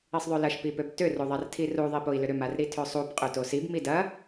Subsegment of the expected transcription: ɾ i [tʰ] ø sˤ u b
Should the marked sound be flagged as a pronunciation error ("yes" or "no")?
no